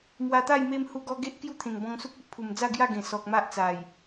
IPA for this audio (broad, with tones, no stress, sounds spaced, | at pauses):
m w a˧ t̪ a˥˧ j m e˧ m h u˧ ɡ ɔ˧ ɡ e˦ ʔ k j u˥˧ t̪ʰ ẽ˨˩ ŋ b ɔ̃˧ ŋ s u˦ k̚ e˦ ʔ pʰ u˨˩ m d͡z a˥˧ ɡ j a˥˧ ɡ ẽ˨˩ s ɔ˨ k̚ m a˦ ʔ t͡s a˨˩ j